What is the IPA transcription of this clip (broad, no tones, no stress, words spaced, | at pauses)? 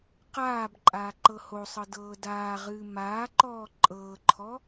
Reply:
qaːb ǃʼaːǃɤhosˤɤ dɤːdaːʁɨː maːǃɔː ǃʼɤːǃʰɔ